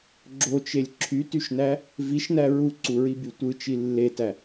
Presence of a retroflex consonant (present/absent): absent